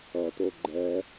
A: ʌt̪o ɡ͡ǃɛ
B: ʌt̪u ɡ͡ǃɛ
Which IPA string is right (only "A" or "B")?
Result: A